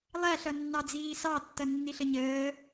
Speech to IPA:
lˠ æ ɬ ʌ nː ɑ d͡z iː s ɑ tː ʌ nː i ɬ ə ɲ əː

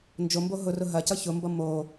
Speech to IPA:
n d͡ʒ o m b o ɦ ʊ r ʊ ɦ ɐ c ʌ ç ʊ m b ʌ m o

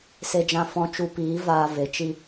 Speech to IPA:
s e˦ d͡ʒ ã˦ f ɔ̃˦ t͡ʃ u˧ p iː˨˦ v aː˦ v e˧ t͡ʃ i˦

